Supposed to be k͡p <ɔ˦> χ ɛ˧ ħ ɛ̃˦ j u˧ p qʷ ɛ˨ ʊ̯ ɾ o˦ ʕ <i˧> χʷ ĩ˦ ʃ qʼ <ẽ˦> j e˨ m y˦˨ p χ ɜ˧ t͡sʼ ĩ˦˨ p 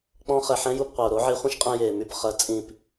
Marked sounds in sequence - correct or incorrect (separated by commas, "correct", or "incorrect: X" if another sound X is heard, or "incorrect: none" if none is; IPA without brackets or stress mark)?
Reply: incorrect: ɔ̃˦, correct, incorrect: ẽ˧